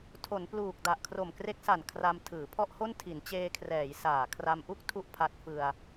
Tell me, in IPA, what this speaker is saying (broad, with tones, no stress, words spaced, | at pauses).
tʰo˩˦npluː˨˩k̚ da˨˩ʔkʰro˨˩mkre˦˥k̚sa˨˩n kʰra˧m tʰɯː˩˦pʰɔ˥˩ʔho˥˩n tʰi˩˦nt͡ɕeː˧kʰrɛː˩˦j saː˨˩ kʰra˧mʔu˥˩k̚ tʰu˥˩ʔpʰa˦˥t̚fɯ˧a̯